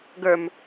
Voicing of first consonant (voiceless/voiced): voiced